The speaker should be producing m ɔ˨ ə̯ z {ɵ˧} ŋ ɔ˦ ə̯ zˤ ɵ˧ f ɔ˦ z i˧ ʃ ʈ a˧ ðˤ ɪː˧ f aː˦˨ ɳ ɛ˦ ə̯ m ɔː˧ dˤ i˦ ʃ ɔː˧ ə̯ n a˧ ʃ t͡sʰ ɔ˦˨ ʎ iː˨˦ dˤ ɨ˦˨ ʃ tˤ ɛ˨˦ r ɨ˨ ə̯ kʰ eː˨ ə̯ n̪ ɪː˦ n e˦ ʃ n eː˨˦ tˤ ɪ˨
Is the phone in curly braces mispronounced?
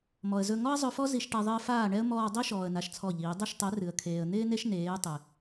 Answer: no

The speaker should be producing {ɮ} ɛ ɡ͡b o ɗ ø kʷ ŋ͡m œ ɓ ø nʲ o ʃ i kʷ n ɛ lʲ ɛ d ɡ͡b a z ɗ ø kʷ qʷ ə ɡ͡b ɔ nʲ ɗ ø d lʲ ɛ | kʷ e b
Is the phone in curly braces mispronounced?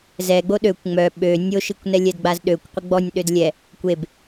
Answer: yes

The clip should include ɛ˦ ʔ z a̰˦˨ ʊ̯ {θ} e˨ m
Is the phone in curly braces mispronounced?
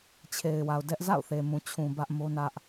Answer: no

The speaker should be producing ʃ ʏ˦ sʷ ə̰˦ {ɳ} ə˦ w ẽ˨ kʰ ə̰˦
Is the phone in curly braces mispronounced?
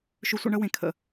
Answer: no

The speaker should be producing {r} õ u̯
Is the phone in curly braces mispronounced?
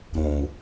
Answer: yes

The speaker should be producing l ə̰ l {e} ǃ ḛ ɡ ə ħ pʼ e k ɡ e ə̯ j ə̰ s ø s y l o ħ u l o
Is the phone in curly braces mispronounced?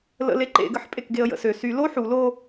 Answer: no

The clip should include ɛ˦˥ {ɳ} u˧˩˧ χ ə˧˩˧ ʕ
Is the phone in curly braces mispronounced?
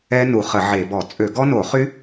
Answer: yes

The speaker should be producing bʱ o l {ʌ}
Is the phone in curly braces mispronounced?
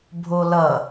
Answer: no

